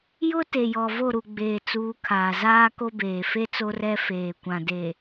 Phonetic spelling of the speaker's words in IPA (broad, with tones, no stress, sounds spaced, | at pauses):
j ʊ˦ t e˨ j ɔ˨ v o˦˨ ɾ u˨ ɡ͡b eː˨ t͡s uː˨˦ kʰ aː˨ z aː˦ k o˦ b eː˨ f e˦ t͡s o˦ r ɛ˦ f eː˨ kʷ ã˨ d e˨